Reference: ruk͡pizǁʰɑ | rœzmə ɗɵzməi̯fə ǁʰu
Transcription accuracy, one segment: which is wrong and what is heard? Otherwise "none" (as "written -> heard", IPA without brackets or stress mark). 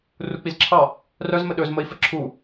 none